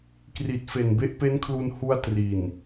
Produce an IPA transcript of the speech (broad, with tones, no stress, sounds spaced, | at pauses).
k r i˨˩ t̚ f e˨˩ n b e˦˥ ʔ p e˦˥ n kʰ l u˧ n h u˧ a̯ t r i˨˩ n